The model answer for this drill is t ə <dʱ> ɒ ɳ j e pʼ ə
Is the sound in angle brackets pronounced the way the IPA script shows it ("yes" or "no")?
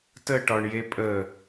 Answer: no